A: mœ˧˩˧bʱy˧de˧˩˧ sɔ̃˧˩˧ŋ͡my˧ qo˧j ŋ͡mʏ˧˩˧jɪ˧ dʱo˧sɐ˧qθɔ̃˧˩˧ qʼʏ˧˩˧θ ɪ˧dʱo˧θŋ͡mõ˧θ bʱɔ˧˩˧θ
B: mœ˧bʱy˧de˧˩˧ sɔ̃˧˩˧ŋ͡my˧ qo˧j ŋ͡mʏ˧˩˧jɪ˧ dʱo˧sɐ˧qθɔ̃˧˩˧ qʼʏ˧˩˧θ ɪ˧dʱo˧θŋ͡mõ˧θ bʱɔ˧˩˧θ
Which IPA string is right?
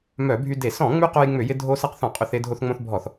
A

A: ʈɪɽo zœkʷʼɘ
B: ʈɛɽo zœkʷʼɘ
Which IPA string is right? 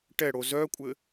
B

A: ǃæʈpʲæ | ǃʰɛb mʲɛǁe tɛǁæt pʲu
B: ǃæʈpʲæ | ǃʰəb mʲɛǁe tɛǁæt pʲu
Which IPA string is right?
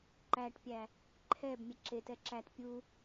A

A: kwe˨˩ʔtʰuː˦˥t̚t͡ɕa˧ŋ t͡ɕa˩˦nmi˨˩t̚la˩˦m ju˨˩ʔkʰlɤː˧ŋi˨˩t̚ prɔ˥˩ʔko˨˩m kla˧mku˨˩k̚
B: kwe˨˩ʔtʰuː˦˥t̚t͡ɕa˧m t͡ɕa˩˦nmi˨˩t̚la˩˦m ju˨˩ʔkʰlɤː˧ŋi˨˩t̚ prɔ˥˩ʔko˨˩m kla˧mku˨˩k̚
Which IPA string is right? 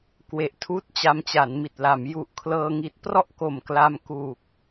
B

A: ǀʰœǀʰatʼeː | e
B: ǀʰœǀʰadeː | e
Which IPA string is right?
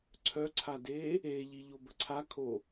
B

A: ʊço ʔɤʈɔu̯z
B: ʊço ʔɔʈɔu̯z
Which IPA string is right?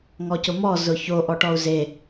B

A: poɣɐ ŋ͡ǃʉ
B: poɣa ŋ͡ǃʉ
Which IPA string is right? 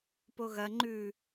A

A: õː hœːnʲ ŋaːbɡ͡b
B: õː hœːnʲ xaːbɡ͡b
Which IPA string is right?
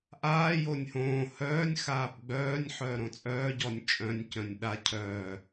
B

